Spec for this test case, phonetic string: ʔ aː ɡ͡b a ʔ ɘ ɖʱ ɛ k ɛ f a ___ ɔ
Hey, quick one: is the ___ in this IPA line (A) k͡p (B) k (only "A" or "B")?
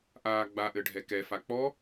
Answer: A